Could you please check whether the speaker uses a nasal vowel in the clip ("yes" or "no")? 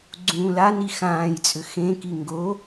yes